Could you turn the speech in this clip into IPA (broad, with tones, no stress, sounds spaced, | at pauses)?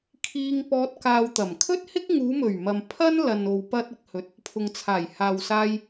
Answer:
kʰ iː˧ ŋ p ɔː˧ t̚ k aː˧ w t̪ ɐ˨˩ m kʰ ɵ˥ t̚ h ɪ˥ k̚ ŋ uː˨˧ m ɵ˨˩ ɥ m ɐ˨ m pʰ ɐ˥ n l ɐ˨ n o˨ w p ɐ˧ t̚ ɪ˨ k̚ h ɵ˨ t̚ | pʰ ʊ˨ ŋ t͡sʰ aː˨˩ j h aː˨ w s aː˧ j